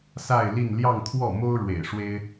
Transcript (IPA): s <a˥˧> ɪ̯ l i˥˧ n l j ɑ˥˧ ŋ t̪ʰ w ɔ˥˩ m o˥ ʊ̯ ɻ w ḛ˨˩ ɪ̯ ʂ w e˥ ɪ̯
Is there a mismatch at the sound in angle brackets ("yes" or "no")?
no